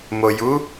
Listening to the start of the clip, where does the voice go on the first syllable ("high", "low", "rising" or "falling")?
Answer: low